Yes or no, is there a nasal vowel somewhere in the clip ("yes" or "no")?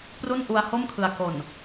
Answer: no